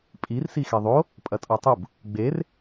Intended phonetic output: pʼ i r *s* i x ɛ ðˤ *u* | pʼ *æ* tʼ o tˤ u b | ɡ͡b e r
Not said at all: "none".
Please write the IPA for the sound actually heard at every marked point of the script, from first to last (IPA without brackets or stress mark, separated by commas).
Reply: s, o, ɐ